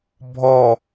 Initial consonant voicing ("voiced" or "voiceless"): voiced